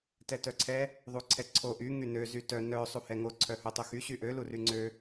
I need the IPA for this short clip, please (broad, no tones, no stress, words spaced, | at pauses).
tɛtœǀʰɛ | ðˤuǀʰɛǀʰo ʔy ŋynø zytœ nœ sˤuhɛŋo ǀʰœhotˤoxy ɕyʔø luryŋ͡ǀø